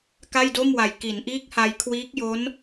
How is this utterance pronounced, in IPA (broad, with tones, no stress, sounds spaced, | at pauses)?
k a˥˩ j d o˥˩ m w a˨˩ j k i˩˦ n ʔ iː˦˥ k̚ h a˧ j kʰ w iː˦˥ k̚ j o˦˥ n